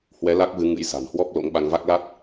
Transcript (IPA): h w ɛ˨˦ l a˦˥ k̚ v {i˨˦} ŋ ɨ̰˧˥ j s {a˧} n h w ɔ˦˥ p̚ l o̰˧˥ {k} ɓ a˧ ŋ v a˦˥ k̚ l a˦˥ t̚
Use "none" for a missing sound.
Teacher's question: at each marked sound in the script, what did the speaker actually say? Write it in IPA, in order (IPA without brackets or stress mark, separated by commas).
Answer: ɨ˨˦, a̤˨˩, ŋ